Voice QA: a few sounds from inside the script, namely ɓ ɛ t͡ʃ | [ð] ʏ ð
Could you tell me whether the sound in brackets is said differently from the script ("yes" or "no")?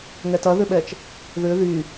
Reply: no